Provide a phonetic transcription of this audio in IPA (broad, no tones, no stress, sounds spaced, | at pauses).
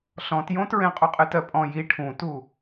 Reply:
ɬ ɔ̃ t j õ t ɹ ẽ qʼ u qʼ ɨ t ɜ pʼ ɔ̃ j i ʈʰ ũ t u